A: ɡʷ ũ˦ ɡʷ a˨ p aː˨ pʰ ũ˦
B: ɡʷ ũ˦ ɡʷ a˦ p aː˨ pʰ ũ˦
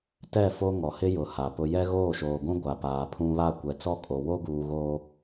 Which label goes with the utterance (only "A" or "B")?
A